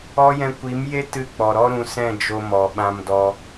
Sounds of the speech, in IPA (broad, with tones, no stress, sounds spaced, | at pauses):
ɔ˦ j ɛ̃˧ kʷ i˨˦ m j e˦ t ɨ˧ k͡p ɔ˨ ɾ ɔ˦ ɾ ũ˧ s ɛ̃˦˨ d͡ʒ o˧ m ɔ˨ ɓ ã˧ m d ɔ˧